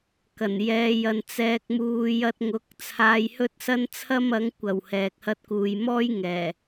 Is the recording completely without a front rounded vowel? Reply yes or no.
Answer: yes